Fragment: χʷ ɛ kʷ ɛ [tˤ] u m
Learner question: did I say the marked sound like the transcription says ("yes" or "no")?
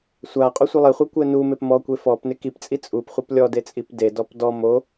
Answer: no